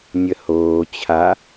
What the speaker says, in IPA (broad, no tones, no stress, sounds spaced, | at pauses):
nʲ ə h oː t͡ɕʰ a